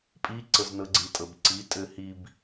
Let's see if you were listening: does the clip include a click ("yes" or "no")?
yes